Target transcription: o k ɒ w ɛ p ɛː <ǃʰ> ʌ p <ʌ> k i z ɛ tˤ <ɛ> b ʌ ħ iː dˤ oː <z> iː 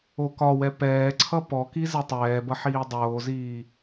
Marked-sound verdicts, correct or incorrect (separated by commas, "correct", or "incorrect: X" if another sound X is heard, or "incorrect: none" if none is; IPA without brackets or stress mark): incorrect: ǀʰ, incorrect: ɔ, incorrect: ɛː, correct